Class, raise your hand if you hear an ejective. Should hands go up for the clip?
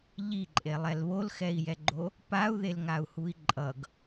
yes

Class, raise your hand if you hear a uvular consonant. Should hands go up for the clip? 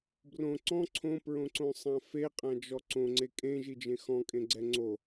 yes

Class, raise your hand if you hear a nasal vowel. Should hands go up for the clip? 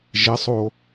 no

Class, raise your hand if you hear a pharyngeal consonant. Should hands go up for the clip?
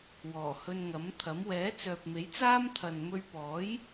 no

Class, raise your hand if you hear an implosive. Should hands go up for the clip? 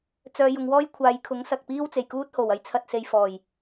no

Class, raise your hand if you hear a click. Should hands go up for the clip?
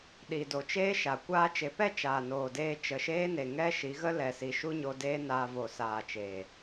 no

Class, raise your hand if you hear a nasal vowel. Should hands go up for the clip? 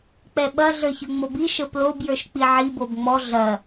no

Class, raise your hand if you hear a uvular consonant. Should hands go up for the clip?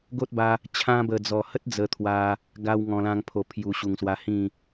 no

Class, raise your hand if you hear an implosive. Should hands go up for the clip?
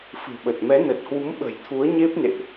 yes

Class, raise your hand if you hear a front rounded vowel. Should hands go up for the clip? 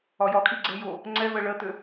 yes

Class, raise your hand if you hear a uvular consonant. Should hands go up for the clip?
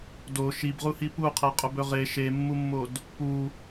yes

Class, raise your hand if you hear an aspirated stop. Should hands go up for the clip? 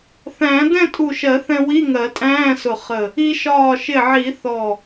no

